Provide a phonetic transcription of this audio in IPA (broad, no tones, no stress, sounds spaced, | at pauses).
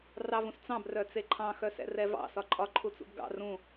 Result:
r ɑ v ũ s t͡s ɑ̃ b r œ t͡s e ǃʰ ɑ̃ x œ s ɛ̰ r ɛ v ɑ̰ s ɒ ǃʼ ɒ ǃʰ u t͡s ṵ b ɡ ɑ̰ r ũ